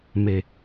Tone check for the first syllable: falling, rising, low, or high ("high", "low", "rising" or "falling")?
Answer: low